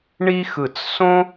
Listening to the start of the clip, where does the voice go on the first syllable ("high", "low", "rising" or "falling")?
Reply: high